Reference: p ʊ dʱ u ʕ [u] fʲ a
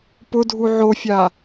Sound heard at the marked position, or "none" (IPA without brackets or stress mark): o